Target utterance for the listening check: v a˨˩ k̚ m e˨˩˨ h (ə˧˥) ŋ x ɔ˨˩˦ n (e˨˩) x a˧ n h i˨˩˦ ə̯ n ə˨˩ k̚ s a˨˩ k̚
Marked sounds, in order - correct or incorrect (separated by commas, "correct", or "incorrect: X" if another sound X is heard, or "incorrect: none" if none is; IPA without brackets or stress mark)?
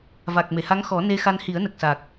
incorrect: a˧˥, incorrect: e˧